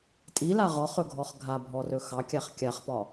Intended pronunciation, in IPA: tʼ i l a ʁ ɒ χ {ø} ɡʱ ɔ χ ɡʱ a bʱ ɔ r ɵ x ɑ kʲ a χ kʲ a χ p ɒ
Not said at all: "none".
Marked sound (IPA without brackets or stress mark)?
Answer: ɵ